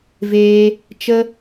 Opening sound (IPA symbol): v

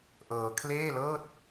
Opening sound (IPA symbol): ʔ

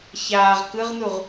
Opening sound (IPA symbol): ç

